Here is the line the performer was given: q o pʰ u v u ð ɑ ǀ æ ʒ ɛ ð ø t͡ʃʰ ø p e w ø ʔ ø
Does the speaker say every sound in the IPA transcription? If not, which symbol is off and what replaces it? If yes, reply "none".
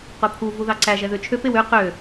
ʔ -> q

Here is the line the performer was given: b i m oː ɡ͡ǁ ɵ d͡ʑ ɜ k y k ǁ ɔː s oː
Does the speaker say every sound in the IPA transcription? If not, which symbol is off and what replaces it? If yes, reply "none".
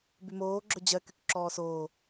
i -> y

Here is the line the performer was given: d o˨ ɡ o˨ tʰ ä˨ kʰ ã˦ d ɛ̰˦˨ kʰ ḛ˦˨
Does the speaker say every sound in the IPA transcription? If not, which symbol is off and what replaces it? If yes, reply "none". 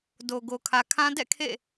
tʰ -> kʰ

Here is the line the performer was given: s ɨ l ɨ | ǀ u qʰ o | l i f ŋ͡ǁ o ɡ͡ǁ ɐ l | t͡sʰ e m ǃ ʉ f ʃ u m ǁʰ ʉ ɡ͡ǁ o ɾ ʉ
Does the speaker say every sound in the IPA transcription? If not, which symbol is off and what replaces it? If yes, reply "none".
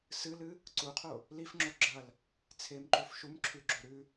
none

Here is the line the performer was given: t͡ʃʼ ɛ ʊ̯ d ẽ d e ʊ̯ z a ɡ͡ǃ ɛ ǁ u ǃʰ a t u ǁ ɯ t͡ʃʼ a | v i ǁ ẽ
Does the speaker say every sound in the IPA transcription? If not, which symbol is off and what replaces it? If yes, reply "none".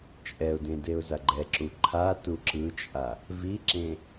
none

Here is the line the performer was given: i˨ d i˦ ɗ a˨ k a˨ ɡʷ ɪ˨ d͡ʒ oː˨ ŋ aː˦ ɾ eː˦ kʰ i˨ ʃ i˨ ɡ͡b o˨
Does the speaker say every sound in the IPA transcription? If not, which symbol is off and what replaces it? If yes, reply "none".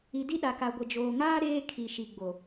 none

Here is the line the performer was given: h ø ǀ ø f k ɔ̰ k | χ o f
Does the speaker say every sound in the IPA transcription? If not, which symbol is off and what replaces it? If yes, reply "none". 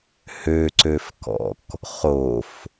none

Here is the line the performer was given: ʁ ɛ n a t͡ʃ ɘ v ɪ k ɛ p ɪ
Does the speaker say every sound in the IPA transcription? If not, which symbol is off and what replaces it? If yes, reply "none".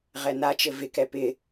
none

